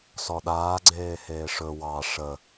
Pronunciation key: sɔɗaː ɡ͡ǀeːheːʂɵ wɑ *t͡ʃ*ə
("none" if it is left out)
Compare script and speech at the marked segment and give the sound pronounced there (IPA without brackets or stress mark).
ʂ